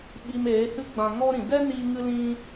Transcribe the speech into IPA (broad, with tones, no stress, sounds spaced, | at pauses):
ɓ i˧ m eː˨˦ h ɨ˦ ɡ͡b ã˧ ŋ ɔ˦ ɾ ĩ˨ d ɛ˦ n iː˧ ŋ ɨ˦ l ĩ˦